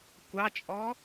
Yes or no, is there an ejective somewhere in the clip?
yes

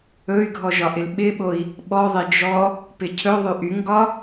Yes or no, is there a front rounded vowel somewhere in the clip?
yes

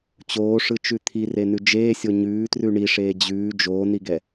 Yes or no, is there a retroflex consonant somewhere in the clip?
yes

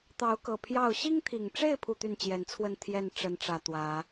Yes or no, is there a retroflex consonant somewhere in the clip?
yes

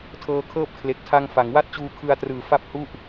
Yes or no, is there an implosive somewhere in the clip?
no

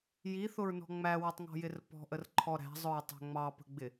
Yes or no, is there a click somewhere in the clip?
yes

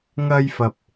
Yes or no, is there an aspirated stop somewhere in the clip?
no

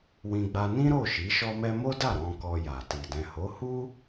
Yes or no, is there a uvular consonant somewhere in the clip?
no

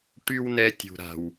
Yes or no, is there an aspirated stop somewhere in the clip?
no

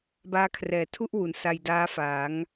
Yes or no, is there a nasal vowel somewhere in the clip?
no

